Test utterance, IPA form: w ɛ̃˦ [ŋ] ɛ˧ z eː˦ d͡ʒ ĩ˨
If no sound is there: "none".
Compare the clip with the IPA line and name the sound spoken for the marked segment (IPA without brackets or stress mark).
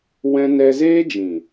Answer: n